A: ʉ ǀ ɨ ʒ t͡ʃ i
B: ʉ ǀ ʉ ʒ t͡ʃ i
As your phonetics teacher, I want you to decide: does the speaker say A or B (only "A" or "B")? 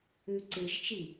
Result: A